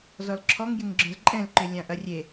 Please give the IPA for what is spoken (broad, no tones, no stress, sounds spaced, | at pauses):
z ɔ l ǁʰ ɔ ŋ j ɪ ŋ ɡ͡ǁ œ̃ z ǃʼ ɛ̃ l ǃ ʏ lʲ ã ʔ ɐ rʲ e